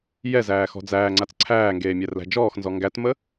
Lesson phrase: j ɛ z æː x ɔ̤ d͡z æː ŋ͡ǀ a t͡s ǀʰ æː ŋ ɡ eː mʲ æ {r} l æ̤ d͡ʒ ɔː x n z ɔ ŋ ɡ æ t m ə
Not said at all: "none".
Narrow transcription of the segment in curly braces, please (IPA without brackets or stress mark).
r